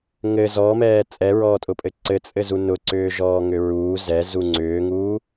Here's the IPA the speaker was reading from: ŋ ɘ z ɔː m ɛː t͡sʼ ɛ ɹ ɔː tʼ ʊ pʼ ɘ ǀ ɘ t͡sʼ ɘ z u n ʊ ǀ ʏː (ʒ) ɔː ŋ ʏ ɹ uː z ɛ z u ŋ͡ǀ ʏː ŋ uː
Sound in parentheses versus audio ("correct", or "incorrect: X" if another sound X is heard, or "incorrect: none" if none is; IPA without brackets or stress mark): correct